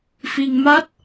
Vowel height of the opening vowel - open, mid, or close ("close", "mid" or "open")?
close